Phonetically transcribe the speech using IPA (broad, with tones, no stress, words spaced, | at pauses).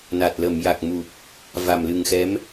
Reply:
na˨˩t̚lə˨˩˨mja˨˩k̚ mu˨˩p̚ | va˨˩mlɨ˨˩ŋxɛ˧˥m